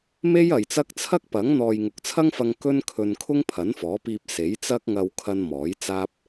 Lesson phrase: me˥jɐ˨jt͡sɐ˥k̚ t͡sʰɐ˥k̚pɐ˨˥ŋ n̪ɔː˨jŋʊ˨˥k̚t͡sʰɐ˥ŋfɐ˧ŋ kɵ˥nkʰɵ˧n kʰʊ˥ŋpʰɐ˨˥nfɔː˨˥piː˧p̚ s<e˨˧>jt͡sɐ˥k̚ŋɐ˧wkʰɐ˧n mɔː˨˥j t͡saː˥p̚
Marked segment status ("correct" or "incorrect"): incorrect